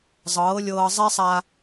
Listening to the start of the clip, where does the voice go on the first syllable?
rising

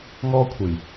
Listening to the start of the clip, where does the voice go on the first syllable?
high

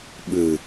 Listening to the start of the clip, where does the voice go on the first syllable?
low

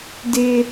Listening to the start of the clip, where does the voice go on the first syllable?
high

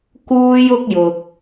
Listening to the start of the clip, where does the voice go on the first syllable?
high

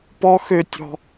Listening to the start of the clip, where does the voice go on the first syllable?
high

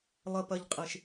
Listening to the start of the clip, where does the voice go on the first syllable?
high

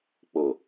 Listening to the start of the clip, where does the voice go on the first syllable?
low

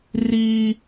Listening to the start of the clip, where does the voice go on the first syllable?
high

